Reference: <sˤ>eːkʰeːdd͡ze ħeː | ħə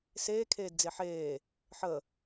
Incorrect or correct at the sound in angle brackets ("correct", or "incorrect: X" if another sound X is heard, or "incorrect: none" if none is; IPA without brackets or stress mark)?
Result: incorrect: s